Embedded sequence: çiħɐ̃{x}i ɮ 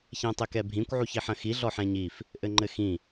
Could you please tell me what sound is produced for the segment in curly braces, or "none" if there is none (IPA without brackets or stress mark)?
x